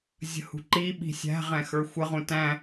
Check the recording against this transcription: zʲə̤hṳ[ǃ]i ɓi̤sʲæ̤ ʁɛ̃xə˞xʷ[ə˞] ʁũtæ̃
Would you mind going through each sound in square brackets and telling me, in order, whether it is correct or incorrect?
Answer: correct, incorrect

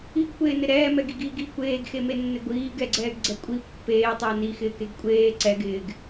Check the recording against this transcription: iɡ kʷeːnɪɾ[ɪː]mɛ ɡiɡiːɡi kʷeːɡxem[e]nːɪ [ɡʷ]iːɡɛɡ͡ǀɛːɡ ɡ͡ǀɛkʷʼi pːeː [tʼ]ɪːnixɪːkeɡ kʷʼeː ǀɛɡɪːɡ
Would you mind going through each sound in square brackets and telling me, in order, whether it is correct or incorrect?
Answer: incorrect, correct, correct, incorrect

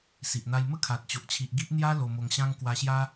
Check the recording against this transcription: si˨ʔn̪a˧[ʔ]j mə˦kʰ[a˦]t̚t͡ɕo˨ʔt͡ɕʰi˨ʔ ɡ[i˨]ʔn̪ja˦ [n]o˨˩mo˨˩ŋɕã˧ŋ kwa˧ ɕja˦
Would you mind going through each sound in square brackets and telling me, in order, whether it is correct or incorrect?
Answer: incorrect, incorrect, incorrect, incorrect

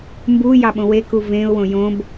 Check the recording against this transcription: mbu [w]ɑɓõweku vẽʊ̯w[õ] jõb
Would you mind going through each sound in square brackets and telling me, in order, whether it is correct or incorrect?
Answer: incorrect, correct

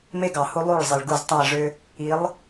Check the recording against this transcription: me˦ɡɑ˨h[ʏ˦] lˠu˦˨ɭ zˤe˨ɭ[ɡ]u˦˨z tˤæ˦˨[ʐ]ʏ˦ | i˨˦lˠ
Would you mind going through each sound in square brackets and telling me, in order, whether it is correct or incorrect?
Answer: incorrect, correct, correct

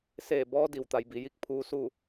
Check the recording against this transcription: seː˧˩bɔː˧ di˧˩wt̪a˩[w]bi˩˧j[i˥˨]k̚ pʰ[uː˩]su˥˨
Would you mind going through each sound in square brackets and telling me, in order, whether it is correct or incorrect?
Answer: incorrect, correct, incorrect

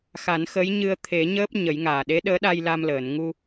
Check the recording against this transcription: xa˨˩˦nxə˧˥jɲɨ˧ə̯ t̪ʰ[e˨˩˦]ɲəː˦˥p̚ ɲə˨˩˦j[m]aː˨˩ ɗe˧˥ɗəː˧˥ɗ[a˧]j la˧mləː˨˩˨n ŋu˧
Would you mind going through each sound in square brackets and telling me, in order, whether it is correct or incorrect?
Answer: correct, incorrect, correct

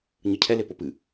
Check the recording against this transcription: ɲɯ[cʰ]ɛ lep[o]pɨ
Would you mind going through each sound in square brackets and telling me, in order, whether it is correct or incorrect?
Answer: correct, correct

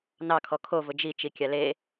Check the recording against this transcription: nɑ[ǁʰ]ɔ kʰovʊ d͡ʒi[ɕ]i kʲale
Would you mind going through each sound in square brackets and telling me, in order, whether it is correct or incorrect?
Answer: incorrect, incorrect

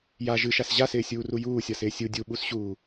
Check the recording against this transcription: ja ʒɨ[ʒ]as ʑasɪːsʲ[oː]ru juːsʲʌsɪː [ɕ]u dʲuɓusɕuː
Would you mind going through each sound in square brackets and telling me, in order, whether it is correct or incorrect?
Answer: incorrect, incorrect, incorrect

